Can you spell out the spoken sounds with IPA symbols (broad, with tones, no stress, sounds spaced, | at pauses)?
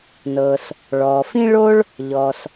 n ɤ˩ s | ɭ ɔː˩ f ĩ˥ ɭ o˥ ɭ | ʎ ɔ˩ s